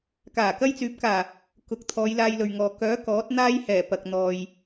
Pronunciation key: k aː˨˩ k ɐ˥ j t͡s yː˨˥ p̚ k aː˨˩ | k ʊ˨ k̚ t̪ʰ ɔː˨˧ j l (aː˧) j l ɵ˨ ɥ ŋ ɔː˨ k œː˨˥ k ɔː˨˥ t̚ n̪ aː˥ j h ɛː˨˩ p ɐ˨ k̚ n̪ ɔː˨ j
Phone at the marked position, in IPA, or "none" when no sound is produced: aː˧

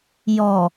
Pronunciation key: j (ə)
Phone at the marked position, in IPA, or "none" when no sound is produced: ɔ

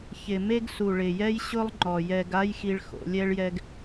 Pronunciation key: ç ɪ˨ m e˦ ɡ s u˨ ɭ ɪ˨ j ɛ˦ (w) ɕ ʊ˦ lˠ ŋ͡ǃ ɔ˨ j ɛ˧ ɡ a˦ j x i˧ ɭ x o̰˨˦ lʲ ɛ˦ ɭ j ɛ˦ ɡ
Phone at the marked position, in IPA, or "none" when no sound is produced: j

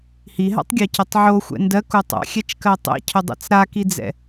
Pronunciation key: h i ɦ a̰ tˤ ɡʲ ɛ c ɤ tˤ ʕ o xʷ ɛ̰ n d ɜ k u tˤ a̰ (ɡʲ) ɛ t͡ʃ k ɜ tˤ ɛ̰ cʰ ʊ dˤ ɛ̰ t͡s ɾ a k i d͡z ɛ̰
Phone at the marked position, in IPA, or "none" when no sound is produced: xʲ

